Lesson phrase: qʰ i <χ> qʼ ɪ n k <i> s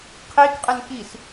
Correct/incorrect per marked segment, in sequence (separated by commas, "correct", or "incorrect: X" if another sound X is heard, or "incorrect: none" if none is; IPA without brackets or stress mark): incorrect: k, correct